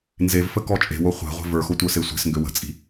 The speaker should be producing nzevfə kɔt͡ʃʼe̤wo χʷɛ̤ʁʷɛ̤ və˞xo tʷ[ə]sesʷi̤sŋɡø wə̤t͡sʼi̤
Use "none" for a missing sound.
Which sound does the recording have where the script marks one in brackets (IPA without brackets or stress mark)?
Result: ə˞